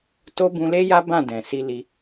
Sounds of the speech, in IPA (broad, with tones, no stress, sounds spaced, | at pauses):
t o˧ b ũ˧ l e˦ j a˦ b ã˦˨ d ɛ̃˨ s i˧ l i˧